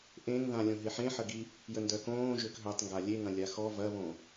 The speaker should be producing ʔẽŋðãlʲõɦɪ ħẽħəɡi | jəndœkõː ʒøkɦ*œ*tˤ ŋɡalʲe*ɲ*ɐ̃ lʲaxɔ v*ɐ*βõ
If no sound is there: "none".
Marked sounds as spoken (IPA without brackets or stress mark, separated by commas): œ, ŋ, ɐ